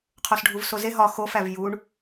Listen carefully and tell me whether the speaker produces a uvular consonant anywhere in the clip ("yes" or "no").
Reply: yes